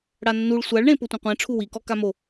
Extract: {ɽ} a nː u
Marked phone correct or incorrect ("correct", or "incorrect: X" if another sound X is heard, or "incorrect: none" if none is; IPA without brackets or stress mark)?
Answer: correct